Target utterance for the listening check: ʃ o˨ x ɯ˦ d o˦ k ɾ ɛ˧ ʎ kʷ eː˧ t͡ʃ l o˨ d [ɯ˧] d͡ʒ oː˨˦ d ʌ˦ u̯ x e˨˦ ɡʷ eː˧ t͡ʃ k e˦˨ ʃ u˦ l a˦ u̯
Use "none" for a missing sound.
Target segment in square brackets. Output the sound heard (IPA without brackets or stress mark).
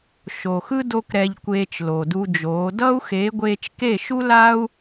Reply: u˧